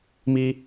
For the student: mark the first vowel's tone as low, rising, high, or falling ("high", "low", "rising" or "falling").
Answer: high